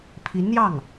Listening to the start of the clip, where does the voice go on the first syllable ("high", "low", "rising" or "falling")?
rising